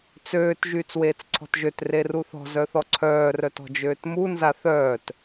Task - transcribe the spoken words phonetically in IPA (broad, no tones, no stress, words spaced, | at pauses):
t͡søːt ʒyːt͡sweːt͡sǀʰɔ̤tʒøt reruθɔ̤ zœθɔǀʰœː rœtɔ̤d͡ʒøːtmu nzaθœːt